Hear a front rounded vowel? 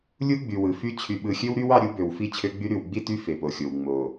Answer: yes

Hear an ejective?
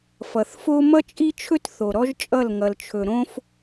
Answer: yes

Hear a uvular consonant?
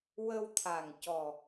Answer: no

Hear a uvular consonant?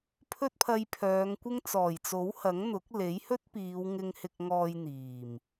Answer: no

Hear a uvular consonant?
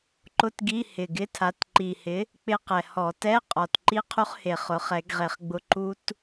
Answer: yes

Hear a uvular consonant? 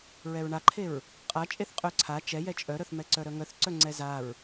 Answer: yes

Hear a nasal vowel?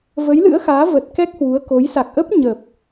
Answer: no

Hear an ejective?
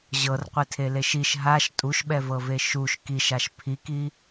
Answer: yes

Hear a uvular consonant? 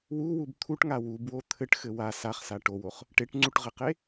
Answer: yes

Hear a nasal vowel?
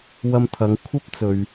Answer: no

